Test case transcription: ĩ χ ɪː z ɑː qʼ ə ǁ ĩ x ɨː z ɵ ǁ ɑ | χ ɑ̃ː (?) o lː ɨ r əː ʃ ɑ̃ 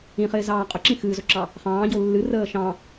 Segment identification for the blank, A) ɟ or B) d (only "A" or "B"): A